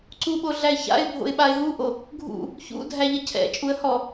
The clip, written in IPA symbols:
ǀ u ɓ o ɮ æ ɪ̯ ç a̰ ɪ̯ bʱ o̰ ɪ̯ ɓ a ɪ̯ ɦ u ʔ o | ɡʱ ṵ | ç ṵ dʱ æ ʎ ɐ cʰ ɛ̰ t͡ʃʼ u ə̯ h ɔ

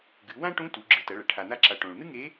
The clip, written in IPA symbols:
ɡ ɨ˩˧ w ã˥ ʈ ũ˧˥ t u˩˧ ɡ͡ǁ ɨ˩˧ t ɐ˩˧ ɭ ɐ˩ ʈʰ a˩ n̪ a˧ ǁ a˩ ʈ õ˩ ɭ n̪ ɨ˥ ŋ e˧˥

